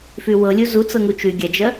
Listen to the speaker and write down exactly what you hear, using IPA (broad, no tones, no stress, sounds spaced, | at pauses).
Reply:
f y w ɤ lʲ u z u t͡s ɤ ŋ u t͡ʃ y ɡʲ a d͡ʒ ɜ